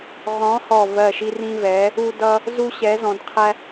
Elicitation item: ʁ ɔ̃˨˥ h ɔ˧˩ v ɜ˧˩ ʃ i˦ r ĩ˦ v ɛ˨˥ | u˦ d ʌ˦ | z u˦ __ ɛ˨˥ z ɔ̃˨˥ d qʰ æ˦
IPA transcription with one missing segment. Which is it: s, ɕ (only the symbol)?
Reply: ɕ